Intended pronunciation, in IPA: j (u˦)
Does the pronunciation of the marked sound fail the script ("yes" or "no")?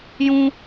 yes